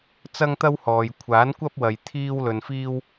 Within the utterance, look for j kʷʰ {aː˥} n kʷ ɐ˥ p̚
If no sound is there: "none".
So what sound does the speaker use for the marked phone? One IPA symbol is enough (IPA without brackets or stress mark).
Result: aː˨˥